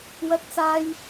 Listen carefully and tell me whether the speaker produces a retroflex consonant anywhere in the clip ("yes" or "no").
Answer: no